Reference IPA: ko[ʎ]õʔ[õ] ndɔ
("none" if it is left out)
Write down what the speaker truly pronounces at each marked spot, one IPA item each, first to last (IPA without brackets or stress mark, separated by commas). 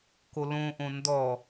l, õ